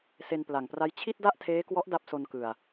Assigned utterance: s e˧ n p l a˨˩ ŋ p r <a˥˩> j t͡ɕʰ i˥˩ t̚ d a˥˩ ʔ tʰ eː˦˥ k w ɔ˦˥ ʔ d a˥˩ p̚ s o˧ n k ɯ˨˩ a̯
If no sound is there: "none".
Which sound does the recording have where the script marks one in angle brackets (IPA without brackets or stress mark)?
a˦˥